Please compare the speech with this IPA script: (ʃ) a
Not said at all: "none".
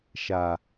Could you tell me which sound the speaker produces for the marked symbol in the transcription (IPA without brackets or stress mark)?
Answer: ʃ